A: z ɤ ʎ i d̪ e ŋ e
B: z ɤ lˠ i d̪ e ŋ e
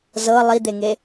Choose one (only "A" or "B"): B